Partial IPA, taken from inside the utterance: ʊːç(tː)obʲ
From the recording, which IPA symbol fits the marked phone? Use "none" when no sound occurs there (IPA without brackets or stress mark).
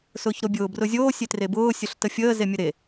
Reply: ɾ